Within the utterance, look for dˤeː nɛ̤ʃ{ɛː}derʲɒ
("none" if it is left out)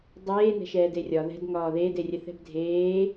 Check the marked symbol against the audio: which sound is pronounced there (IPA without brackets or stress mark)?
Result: ɛː